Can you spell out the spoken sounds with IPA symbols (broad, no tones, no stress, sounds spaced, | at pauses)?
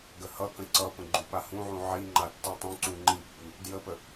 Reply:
ɡ ə h ʌ k ə̃ ǀ ʌ p ə̃ ɡ͡ǃ u p a h ũ ʕ ũ ʕ i ŋ͡ǃ a tː i tˤ ũ ǀ ũ ŋ͡ǃ i pː i | d j ə p ə